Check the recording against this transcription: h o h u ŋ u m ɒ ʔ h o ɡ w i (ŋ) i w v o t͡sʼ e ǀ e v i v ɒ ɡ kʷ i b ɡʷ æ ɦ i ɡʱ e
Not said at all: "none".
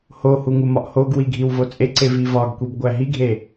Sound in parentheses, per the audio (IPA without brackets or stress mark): ɡʱ